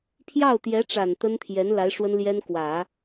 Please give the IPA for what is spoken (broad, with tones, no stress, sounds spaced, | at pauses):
pʰ j ɑ˥˩ ʊ̯ t̪ j ɛ˧˥ ʈ͡ʂ a˨˩ n t̪ ə˥ n t̪ʰ j ɛ˧˥ n l a˧˥ ɪ̯ ʂ w ə˥ n l j ɛ˥ n k w ä˨˩˦